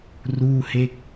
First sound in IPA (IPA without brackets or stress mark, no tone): r